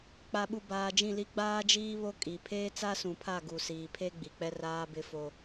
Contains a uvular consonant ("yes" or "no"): no